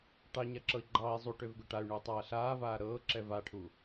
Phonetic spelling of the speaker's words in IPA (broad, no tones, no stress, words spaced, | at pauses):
ʈɑɲaǁɤi̯ ɡ͡ǃɑːi̯ zˤuʈøv ɡøʈay̯ɳuːtˤaː ɬaːvaː ɾɤːǁɛv aʈʰu